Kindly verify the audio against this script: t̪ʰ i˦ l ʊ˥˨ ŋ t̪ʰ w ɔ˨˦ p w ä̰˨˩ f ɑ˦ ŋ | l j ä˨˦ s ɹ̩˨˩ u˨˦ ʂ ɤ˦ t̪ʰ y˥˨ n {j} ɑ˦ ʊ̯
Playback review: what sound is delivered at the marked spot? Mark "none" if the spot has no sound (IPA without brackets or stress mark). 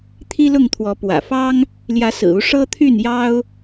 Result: j